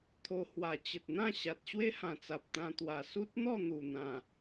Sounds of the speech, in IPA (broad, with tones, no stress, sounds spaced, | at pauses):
t̪ʰ o˧ h w a˨˩ t͡ɕ ə˨ t̚ n̪ ã˥˧ ɕ a˨ t̚ ɕ w e˦ h ã˨˩ t͡s a˨ p̚ t̪ ã˧ t̪ w a˨˩ s u˦ t̚ n̪ ɔ˥˧ n̪ u˨˩ n̪ ã˨˩